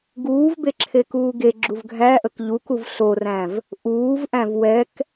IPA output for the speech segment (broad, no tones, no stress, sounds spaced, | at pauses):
ɡ uː v b e ǁʰ e k uː ɡ e ɡ͡ǁ u v ɡʱ æ ʔ ə k ʎ u k u v ɬ o r æ̃ v | ʔ uː v ʔ æ̃ v w ɛ k